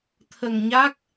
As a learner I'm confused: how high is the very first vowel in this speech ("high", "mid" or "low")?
mid